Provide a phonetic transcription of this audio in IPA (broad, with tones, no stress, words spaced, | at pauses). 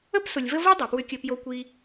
ə˦psʊ˨lʲvə˦ vʊ˦ dˤo˨pwʏ˦kʲə˦ pjo˦kʷi˦